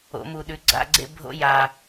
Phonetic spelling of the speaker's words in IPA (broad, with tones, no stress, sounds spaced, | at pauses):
o̰˩˧ m u˨˩ ɗ ʉ˩˧ ɡ͡ǀ a̰˥˨ ɡ͡ǀ ḛ˥˨ bʱ o̰˦ j a˨˩